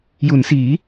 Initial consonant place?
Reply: palatal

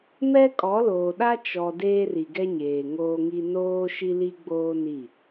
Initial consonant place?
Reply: labial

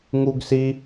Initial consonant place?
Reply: velar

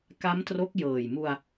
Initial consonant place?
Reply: velar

